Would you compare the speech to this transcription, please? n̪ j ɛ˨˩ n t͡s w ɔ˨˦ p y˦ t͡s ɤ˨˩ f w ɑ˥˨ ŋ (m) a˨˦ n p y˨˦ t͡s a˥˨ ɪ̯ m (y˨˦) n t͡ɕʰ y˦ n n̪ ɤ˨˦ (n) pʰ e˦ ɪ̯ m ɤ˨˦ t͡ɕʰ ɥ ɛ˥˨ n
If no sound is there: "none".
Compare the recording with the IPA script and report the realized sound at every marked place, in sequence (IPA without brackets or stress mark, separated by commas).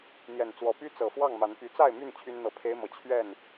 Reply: m, y˥˨, none